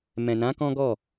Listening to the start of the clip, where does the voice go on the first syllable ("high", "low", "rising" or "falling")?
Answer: low